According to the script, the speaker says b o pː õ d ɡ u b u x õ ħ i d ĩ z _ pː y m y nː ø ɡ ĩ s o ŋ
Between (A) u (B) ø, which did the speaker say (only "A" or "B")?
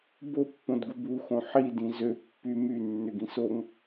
B